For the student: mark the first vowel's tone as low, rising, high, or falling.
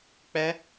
high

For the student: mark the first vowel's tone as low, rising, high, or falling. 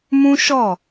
high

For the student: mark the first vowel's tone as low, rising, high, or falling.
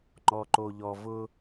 low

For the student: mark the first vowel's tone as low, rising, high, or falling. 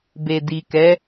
low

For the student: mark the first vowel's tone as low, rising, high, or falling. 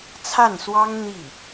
falling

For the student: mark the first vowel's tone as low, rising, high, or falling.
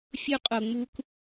high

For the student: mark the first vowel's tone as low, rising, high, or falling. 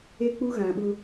high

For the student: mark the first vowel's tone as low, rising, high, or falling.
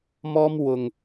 high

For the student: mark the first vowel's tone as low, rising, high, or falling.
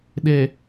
low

